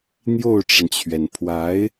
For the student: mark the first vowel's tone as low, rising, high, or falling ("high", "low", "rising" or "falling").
falling